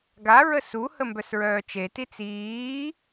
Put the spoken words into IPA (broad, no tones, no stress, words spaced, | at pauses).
ɡaɹə suhə mbœsɹœːt͡ʃeti t͡siː